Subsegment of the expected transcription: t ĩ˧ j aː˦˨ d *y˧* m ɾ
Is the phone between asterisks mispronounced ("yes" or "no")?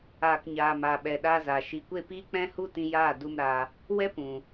yes